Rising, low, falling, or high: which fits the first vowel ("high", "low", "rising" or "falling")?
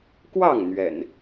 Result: falling